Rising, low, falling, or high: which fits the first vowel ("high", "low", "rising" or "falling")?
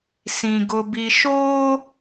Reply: low